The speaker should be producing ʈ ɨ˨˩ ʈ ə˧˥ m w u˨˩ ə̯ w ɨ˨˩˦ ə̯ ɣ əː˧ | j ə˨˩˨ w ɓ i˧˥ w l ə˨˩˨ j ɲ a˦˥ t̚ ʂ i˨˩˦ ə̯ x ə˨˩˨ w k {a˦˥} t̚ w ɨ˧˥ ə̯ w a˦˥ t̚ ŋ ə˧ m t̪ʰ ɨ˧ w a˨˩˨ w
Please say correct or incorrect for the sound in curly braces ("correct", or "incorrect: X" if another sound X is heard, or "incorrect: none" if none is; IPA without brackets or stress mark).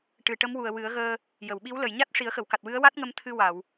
incorrect: a˨˩